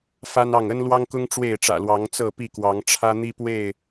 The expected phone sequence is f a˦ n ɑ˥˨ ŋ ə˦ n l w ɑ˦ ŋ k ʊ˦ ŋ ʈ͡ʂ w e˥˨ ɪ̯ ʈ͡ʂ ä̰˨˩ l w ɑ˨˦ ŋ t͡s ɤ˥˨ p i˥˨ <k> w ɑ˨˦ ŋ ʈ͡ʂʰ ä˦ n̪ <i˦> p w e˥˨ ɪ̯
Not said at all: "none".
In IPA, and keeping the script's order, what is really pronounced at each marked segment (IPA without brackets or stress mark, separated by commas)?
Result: k, i˦